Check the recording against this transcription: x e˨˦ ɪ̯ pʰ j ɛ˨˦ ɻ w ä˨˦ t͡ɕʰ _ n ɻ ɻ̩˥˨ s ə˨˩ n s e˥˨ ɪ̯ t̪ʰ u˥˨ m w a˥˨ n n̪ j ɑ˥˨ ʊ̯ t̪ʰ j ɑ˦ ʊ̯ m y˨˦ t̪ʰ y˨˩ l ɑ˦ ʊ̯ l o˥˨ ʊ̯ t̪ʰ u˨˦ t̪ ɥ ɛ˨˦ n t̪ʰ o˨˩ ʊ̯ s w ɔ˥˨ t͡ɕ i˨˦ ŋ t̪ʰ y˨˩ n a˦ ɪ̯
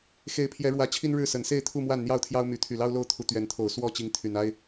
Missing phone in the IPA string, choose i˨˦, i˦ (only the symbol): i˦